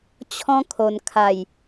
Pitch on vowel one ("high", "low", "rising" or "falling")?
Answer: high